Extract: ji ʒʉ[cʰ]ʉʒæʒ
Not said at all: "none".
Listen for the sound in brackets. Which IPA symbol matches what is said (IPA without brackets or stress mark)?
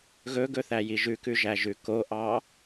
k